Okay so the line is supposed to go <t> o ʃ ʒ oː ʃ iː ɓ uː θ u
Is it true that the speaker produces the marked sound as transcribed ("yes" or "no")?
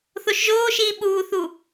no